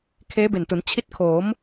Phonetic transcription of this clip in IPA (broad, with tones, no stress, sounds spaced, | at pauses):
kʰ eː˦˥ b e˨˩ n t u˩˦ n t͡ɕʰ i˦˥ t̚ kʰ oː˩˦ m